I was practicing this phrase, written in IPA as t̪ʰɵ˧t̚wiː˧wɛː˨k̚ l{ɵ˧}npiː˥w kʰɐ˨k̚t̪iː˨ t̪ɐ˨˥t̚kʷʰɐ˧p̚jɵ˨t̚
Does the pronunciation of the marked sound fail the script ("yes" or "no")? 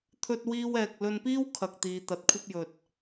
no